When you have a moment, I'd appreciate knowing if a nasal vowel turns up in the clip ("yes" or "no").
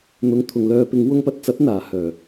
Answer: no